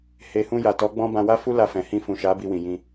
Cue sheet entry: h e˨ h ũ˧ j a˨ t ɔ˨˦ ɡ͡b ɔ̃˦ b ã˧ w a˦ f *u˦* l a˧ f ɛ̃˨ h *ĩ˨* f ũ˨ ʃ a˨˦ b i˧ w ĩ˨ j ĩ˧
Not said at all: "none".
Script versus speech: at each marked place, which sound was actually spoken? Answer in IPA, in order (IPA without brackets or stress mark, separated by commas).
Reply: u˦, ĩ˧